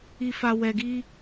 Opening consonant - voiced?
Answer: no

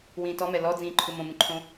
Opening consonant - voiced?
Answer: yes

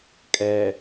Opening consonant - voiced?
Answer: no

